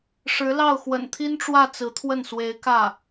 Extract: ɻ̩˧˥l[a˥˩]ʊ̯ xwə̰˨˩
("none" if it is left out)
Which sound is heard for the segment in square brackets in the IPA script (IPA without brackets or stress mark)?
ɑ˥˩